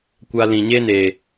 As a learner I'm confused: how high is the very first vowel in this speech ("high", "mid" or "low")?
low